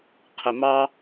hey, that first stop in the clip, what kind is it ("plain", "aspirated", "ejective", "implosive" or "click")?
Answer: aspirated